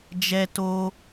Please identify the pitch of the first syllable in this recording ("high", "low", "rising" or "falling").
high